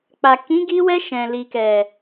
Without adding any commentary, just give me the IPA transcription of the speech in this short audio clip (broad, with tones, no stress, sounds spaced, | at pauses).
k͡p a˨ k ĩ˨˦ ɡ i˧ w ɛ˧ ʃ ɛ̃˨ l i˨ k ɛ˨